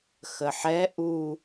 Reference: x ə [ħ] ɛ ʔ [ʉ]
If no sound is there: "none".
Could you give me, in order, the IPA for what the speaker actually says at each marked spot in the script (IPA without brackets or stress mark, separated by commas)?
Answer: ħ, u